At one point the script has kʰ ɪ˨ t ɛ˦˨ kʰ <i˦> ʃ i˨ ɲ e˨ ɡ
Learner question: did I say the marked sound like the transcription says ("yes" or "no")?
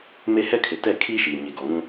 yes